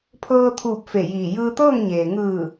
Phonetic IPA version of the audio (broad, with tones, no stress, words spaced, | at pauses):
pʰɤː˧t̪ʰuː˧˩p̚ fe˧˩jiː˧˩ jɯː˧t̪ɤː˥˨ŋɲeː˩ ŋɯː˧˩